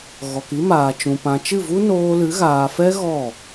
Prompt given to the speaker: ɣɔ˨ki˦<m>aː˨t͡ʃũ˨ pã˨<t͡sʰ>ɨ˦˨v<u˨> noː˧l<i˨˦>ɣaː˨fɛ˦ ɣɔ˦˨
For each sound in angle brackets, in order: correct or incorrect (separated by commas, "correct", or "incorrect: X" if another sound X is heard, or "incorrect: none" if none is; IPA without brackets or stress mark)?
correct, incorrect: t͡ʃ, incorrect: u˦, incorrect: ɨ˨˦